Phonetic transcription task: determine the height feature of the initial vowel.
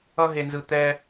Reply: mid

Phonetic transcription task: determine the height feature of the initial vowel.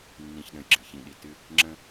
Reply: high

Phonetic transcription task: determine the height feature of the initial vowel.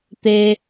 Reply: mid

